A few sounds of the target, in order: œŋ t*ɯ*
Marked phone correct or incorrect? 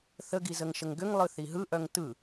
correct